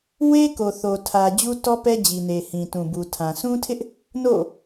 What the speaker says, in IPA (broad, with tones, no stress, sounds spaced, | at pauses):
w e˦ k o˨ θ o˨ tʰ ä˨ d͡ʑ u˦ t ɔ˦ p ɛ˦ d͡ʑ i˨ n e˨ h ĩ˨ t ũ˨ b u˨ tʰ ã˨ sʰ ũ˦ tʰ ɪ˦ ʔ | n o̰˦˨